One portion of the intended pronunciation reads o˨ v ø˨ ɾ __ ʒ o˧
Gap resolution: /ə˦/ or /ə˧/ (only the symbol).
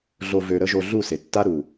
ə˧